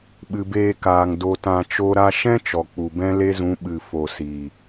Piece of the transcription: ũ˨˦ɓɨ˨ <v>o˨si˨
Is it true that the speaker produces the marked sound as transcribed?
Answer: no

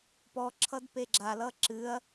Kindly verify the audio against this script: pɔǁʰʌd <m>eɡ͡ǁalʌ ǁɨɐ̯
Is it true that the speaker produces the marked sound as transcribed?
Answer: no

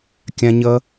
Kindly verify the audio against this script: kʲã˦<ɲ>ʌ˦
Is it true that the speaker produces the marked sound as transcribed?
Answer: yes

